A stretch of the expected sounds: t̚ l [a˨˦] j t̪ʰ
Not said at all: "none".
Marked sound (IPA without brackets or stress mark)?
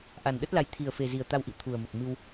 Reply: a˨˦